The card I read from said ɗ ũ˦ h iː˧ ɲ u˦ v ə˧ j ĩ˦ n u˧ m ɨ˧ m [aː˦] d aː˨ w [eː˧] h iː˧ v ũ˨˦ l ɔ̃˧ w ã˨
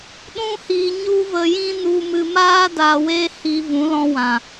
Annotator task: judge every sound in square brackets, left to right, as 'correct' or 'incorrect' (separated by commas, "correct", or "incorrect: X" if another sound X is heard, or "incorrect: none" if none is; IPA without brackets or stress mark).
correct, correct